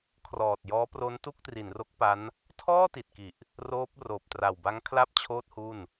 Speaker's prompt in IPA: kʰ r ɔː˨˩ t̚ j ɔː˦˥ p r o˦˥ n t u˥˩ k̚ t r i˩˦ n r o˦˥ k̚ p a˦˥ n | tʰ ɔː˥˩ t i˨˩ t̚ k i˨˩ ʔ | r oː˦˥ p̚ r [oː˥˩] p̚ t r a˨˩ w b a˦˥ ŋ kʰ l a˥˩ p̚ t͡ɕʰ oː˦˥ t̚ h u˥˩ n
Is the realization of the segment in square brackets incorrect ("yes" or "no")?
yes